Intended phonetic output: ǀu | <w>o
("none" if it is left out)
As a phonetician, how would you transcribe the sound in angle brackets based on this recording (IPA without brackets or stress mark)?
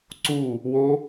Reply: w